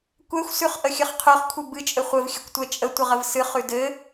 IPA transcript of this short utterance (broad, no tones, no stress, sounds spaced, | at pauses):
kʷ ɛ xʷ s ʉ χ ʔ ə xʲ ɘ χ qʰ ʉ χ kʷʰ ɘ b ɨ t͡ʃʼ ɘ χʷ ɘ v xʲ ɘ kʷ tʷ ɛ t͡ʃʼ ə tʷ ə ʁ ə v s ɨ χ ʉ d ɘ